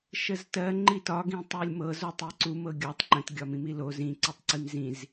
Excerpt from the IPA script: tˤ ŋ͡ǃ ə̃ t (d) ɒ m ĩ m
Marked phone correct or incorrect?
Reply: incorrect